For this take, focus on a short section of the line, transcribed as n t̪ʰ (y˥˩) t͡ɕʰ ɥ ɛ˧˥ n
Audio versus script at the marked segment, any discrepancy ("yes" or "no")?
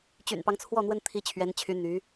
yes